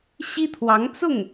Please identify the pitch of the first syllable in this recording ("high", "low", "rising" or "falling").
high